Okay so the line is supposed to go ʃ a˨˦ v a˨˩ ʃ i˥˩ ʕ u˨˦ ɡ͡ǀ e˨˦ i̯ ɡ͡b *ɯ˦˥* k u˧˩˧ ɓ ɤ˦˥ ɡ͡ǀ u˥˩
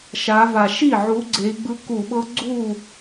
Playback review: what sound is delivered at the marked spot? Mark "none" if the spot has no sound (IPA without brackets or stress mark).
ɯ˦˥